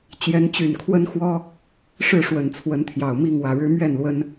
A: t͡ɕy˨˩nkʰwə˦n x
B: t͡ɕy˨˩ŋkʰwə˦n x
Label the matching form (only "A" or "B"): A